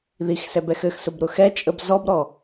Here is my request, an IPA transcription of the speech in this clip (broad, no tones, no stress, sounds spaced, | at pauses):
ð i x s ɛ b ɛ x ɘ x s ʊ b ɾ ʊ x ɛ t͡ʃʼ ə b z ɔ b ɾ ɔ